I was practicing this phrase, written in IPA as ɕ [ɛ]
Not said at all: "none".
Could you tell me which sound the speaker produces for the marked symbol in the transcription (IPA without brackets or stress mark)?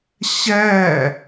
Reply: æ